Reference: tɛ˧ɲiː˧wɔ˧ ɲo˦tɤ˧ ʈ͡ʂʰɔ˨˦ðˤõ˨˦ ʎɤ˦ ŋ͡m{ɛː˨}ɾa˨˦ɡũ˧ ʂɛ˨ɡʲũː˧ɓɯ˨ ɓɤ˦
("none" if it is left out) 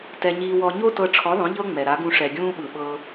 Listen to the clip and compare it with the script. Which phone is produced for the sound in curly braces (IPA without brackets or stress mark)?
ɛ˨